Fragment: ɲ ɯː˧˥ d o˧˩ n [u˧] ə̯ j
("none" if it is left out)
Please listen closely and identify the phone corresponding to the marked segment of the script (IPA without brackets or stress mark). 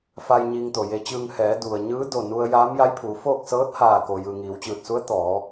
u˧